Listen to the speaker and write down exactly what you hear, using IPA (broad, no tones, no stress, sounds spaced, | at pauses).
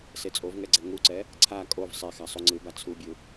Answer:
s e t͡sʼ o v ŋ ɛ ɡ͡ǀ ɛ ŋ u ǀ ɛ | ǀʰ a kʼ o v sˤ e x a sˤ u ŋ͡ǀ ɯ b a t͡sʰ u bʲ ɯ